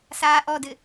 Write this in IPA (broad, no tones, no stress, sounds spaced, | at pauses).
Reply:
s aː ʔ ɔ d ɘ